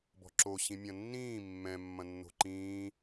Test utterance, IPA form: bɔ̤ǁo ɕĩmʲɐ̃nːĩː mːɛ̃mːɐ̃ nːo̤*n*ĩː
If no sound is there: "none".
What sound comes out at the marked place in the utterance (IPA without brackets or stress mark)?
ǃ